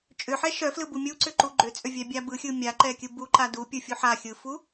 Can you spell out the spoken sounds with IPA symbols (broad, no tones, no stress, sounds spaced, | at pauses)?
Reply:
t͡ʃʼ ʏ ħ ɛ ʃ œ f l ɯ b u mʲ u ǀ ʏ ǃ u ɡ͡ǃ ʏ t͡sʼ ʏ vʲ ɛ bʲ a b ɯ xʲ ɯ mʲ a ǃ ɛ kʲ ɯ b u ǃ a d u pʲ ɯ fʲ u ħ a xʲ ɯ f u